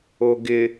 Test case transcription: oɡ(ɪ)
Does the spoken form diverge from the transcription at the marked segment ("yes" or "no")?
no